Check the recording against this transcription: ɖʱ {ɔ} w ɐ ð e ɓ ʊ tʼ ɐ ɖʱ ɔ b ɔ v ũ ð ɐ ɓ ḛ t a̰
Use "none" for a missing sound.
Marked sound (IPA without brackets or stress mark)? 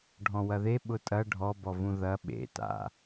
ɔ̃